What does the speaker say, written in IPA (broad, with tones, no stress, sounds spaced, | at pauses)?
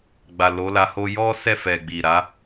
ɡ͡b a˨ l o˨˦ l a˧ h o˧ j ɔ˦ s ɛ˦˨ f ɛ˨ ɡ͡b i˨ ɾ a˨˦